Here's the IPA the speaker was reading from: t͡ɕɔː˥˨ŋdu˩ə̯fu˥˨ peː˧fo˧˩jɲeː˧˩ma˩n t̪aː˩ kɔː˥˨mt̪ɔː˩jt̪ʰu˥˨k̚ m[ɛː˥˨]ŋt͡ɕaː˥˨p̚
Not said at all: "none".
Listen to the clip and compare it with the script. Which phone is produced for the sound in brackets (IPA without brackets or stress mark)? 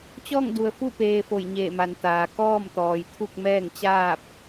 ɛː˥˨